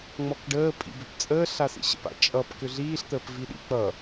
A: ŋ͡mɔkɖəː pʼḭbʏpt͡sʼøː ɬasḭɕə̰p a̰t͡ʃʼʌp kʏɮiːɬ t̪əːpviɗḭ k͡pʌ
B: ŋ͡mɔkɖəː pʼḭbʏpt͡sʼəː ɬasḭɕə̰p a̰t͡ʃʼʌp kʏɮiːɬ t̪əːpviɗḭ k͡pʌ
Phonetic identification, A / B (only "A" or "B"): B